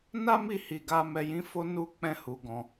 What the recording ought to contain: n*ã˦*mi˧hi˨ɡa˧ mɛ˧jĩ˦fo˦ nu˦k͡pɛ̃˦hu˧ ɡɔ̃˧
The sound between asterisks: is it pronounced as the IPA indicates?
no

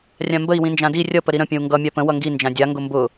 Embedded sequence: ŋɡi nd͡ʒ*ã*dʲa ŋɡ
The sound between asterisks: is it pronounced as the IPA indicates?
yes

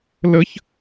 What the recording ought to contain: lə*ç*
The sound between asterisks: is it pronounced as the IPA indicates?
yes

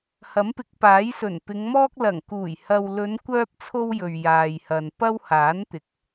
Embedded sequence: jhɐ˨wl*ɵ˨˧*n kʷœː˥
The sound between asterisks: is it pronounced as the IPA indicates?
yes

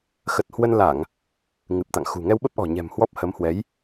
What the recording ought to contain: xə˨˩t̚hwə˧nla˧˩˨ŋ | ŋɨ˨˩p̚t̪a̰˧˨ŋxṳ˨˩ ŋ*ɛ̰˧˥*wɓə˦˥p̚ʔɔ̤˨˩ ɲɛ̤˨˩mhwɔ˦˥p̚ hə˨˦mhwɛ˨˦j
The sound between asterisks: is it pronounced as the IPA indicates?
no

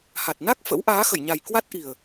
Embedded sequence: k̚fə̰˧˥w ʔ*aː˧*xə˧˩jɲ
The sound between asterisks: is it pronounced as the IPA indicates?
no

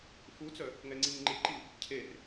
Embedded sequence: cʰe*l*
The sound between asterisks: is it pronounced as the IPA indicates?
no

